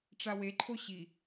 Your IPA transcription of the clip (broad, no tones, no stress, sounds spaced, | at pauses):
ʈ͡ʂ a w e ǃʰ o ɕ i